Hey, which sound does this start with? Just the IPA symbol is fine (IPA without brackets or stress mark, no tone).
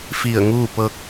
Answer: f